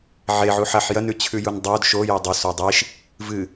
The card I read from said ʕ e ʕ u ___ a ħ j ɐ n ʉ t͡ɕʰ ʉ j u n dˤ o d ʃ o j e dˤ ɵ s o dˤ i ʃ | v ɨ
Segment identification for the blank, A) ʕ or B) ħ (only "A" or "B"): B